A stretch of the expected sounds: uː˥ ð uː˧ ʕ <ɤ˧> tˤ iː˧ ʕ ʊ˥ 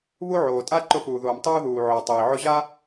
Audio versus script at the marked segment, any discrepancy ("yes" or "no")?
yes